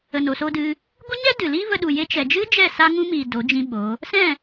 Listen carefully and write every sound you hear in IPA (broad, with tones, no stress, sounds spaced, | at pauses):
ə˨ n o˨ s o˧ d ɨ˧ | ɡʷ e˦ ɲ ɛ˦ d ɨ˨ l iː˦ v ə˧ ɗ u˨ j e˧ t͡ʃ ɛ˨ d͡ʒ ɨ˦ d͡ʒ ɛ˦˨ s a˧ ŋ ũ˧ m iː˨ d o˨˦ d͡ʒ ĩ˦ ɓ o˨˦ | s ɛ̃˦˨